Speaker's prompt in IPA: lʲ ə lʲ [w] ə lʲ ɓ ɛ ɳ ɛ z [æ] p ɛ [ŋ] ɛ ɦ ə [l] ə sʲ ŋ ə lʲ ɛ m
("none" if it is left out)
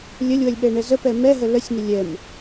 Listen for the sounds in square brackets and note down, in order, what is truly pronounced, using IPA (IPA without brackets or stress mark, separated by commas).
w, ə, m, l